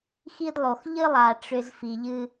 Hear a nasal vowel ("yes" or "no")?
no